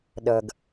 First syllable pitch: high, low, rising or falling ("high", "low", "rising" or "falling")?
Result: low